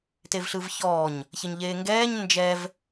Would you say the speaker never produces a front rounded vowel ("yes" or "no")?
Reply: yes